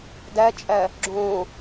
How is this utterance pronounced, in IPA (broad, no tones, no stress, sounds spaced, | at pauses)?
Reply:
d æ t͡ʃʼ æ | ɡ͡ǁ õ